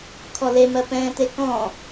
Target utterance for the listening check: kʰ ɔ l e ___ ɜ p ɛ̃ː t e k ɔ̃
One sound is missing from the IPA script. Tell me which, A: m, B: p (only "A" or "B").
A